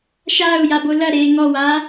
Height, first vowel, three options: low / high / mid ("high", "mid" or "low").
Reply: low